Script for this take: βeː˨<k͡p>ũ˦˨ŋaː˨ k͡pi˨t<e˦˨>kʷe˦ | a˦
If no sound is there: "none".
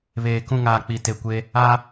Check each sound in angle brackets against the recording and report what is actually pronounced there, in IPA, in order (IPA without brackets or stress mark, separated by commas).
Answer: k, e˨